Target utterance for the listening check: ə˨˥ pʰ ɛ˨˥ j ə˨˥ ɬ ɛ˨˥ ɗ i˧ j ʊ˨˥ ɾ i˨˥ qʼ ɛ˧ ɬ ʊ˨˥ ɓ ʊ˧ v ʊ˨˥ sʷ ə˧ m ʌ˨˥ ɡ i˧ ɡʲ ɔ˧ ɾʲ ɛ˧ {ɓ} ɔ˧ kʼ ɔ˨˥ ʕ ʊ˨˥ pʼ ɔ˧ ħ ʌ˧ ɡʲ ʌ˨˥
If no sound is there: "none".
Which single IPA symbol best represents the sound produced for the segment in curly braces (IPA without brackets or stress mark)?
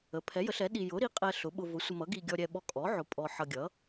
ɓ